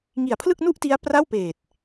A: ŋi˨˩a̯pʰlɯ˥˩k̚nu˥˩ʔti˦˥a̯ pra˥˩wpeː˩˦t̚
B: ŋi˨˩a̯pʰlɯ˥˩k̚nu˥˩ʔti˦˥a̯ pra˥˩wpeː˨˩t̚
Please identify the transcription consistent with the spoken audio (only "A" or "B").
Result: B